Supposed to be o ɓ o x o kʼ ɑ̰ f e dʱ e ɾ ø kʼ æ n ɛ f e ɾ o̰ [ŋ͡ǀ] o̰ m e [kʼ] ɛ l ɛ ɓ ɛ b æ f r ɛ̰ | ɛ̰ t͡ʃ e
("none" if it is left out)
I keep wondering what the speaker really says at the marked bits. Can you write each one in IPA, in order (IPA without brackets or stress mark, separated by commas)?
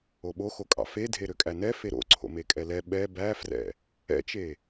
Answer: ǀʰ, kʼ